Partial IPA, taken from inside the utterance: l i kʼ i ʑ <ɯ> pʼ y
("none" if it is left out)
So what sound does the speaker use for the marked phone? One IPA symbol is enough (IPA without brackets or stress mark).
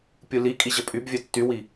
ə